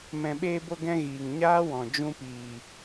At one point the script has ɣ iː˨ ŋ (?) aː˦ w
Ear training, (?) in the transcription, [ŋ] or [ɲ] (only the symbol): ɲ